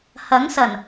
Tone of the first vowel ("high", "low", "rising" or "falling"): rising